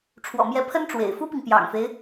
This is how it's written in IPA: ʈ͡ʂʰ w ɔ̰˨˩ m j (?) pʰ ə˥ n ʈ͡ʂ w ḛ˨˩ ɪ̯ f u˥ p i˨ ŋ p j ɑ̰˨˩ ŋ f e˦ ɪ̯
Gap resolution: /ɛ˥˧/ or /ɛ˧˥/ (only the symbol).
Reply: ɛ˧˥